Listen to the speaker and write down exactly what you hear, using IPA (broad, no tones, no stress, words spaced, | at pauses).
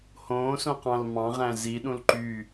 hõːsõqɑ̃l mɑ̃ʁæ̃ ziɗũl ǃy